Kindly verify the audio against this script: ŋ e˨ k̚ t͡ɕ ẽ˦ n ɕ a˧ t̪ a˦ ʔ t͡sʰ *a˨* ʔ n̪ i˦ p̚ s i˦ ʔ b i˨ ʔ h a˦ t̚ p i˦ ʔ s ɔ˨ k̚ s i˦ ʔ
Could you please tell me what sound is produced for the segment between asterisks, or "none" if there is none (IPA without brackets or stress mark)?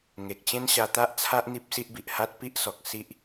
a˦